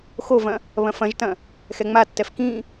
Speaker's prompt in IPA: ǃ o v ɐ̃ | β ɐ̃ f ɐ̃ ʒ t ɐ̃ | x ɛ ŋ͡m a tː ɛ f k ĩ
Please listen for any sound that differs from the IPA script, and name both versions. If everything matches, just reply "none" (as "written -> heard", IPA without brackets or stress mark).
ǃ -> x